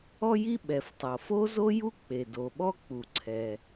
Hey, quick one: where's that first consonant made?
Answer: palate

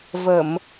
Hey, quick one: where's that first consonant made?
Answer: lips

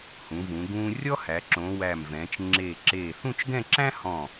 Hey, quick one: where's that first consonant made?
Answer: throat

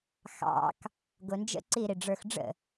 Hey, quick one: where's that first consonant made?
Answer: velum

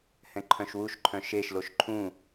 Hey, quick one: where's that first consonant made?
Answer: throat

